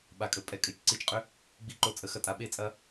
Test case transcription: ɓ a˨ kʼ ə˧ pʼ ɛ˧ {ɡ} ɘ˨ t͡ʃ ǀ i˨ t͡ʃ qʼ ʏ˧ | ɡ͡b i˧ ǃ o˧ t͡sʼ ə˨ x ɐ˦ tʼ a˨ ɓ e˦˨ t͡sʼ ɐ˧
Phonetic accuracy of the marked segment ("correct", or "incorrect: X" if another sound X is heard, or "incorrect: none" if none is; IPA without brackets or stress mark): incorrect: kʼ